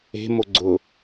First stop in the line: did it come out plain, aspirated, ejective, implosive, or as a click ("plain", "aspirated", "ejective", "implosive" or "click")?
click